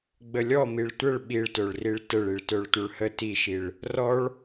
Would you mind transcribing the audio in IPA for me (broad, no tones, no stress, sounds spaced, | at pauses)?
ɡ͡b ə lʲ ɔ m i ɭ tʷ ə ɭ ɓ i ɭ t œ ɭ r i ɭ t ə ɭ i ɭ t œ ɭ tʷ œ ɭ h ə t i ʃ i ɭ | r ɔ ɭ